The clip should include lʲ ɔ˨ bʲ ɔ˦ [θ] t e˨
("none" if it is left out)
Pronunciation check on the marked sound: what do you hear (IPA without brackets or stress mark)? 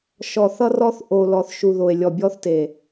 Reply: θ